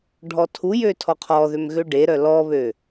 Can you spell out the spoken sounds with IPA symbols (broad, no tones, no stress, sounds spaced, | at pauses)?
ɖʱ ɔ tʰ u j ø tʰ ɔ qʰ ɔ ð ø m ɣ ø ɖ e ɾ œ l ɔ β ø